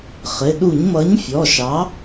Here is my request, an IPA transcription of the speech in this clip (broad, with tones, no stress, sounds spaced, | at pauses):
χ ɪ˩˧˩ ɗ u˧˩˧ ɲ m ʌ˨˥ ɲ fʲ ɔ˩˧˩ ʃ ɑ˨˥